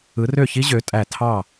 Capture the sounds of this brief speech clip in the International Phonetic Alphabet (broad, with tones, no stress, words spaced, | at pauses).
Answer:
ɯ˨˦rø˥˨çi˦˥ ʑø˨˦tʼæ˧˩ tʰɑ˥˨